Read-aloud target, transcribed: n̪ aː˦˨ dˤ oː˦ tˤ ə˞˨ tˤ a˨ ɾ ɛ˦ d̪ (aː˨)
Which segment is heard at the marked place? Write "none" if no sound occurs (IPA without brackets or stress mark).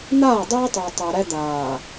aː˨